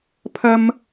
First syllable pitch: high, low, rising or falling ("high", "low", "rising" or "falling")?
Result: high